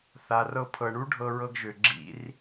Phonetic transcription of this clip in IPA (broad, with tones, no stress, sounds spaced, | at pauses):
θ a˨ r ɤ˧ pʰ ɤ˨ ɳ u˦ ɖʱ ɤ˧ ɹ ɤ˧ ɡ ʒ ø˨ ɡ͡ǁ ḭ˧ r